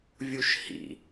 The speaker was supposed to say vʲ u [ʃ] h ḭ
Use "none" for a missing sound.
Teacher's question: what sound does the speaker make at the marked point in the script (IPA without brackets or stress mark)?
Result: ʃ